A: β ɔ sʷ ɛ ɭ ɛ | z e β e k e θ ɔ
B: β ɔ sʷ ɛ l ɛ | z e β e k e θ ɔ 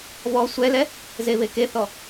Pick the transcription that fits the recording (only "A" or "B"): B